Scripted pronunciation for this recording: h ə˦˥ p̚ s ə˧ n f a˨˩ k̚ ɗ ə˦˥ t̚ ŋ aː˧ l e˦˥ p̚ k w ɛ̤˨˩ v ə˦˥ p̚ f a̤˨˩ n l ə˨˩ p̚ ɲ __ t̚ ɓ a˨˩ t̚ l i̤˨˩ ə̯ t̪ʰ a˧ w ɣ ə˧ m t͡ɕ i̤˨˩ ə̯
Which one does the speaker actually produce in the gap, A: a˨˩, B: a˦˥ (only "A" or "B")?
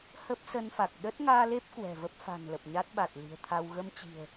B